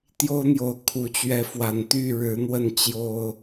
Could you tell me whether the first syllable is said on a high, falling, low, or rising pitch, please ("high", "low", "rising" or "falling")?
high